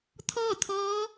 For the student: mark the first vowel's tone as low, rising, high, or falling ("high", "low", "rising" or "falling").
falling